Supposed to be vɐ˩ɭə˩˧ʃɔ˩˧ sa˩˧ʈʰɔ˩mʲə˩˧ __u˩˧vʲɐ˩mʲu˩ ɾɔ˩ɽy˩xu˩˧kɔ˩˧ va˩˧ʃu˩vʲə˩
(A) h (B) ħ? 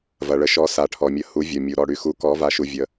A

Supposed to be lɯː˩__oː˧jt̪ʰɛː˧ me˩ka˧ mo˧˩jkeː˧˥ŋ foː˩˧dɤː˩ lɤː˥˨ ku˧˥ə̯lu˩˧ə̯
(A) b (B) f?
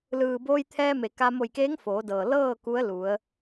A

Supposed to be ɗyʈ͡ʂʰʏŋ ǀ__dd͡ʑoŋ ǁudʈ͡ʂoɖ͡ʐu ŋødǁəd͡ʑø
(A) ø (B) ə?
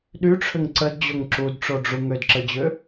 B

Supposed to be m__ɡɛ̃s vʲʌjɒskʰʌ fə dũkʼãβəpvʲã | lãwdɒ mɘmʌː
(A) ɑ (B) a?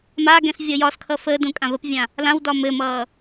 B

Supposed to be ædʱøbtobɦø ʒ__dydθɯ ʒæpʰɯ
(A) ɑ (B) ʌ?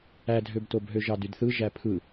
A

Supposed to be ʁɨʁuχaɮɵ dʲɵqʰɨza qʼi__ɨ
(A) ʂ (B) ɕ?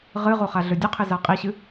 B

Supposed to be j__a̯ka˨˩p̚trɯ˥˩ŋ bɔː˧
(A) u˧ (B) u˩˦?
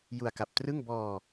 A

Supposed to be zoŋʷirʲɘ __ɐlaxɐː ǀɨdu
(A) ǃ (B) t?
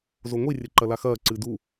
A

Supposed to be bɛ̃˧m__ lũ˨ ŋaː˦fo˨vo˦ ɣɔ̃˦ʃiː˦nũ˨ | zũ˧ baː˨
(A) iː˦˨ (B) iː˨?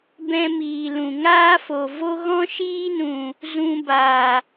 B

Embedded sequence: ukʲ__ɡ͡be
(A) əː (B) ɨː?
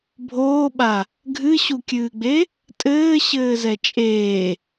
B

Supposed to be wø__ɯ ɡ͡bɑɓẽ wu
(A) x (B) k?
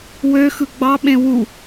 A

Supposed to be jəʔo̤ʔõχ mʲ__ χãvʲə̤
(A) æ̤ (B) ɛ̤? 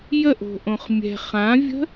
B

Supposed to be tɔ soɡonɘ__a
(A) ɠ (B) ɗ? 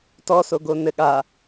A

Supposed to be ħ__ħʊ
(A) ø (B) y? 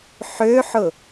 A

